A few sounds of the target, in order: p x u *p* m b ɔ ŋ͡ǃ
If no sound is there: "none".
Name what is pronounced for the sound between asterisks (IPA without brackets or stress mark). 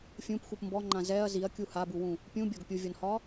p